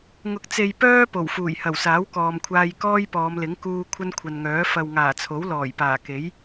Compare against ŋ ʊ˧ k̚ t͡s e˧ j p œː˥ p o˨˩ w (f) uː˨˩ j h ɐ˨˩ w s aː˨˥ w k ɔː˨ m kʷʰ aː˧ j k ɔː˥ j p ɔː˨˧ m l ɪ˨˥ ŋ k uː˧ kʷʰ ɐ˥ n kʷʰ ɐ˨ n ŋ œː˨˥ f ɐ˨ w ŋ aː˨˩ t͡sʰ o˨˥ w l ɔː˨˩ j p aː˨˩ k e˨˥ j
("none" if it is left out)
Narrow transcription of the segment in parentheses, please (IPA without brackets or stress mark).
f